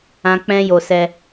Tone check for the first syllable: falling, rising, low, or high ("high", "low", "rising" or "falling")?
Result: high